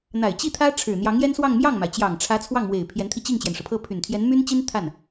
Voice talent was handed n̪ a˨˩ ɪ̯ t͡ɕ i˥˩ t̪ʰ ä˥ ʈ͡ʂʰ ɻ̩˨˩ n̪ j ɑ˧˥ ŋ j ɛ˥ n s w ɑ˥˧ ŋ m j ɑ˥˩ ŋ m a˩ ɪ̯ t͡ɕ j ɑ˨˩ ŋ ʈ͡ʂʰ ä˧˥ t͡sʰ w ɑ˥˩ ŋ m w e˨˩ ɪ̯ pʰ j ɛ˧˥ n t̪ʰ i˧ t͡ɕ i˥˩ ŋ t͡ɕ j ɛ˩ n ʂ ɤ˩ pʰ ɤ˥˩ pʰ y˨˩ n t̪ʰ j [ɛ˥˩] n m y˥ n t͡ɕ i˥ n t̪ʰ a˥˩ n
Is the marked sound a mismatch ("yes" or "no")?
yes